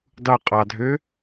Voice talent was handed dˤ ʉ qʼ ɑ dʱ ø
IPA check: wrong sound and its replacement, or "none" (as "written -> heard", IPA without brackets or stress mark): ʉ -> u